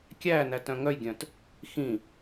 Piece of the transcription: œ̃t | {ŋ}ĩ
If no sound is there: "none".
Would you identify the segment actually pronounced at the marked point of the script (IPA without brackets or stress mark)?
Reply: x